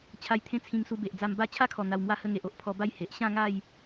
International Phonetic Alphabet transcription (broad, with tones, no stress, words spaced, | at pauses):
t͡ɕʰa˧jt̪ʰẽ˦t͡sʰĩ˧ŋsu˧ be˨ʔd͡za˧mba˥˧ t͡ɕʰa˦kʰɔ˨˩ n̪a˧wmwa˦hə˦ ŋe˨ʔo˦ʔ pʰɔ˧ba˥˧j he˨ʔ ɕã˥˧ŋa˥˧j